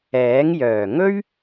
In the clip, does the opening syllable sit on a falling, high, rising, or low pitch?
rising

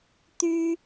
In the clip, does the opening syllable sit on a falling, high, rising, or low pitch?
high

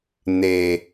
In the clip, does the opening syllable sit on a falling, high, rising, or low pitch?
low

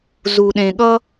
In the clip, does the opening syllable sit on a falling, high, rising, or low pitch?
low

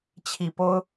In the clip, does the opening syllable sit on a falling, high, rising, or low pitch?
low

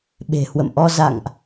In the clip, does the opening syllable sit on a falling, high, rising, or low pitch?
low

